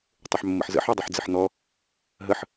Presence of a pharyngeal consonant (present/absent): present